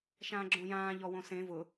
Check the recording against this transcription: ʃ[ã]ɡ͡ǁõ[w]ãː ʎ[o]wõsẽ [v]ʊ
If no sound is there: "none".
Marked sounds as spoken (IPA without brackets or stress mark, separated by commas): ãː, j, ɔ, v